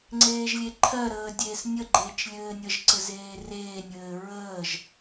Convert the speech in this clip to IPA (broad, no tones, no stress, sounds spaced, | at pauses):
ŋ͡ǀ eː ʒ lʲ e ǃʰ ɜ ɾ əː dʲ eː s nʲ ə ɡ͡ǃ eː t͡ʃ lʲ ɘː nʲ ə ʒ ǀ ɘ z eː r eː nʲ ɘː ɹ əː ʒ